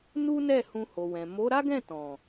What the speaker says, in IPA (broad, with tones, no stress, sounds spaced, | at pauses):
n u˦ n ɛ˦˨ h ũ˧ h o˨ w ɛ̃˨ m o˨˦ ɾ a˦ ɡ ɛ̃˦˨ t ɔ̃˨